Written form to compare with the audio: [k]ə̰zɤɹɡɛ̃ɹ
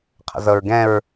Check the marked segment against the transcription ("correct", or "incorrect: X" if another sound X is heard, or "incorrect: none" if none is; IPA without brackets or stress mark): incorrect: qʰ